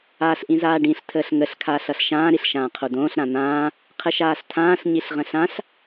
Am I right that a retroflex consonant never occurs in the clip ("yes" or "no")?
no